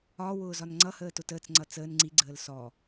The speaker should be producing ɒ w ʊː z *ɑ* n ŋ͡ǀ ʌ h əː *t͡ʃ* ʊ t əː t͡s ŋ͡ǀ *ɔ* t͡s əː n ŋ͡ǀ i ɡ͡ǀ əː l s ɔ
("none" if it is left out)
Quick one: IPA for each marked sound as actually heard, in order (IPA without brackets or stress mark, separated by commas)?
ɒ, t, ʌ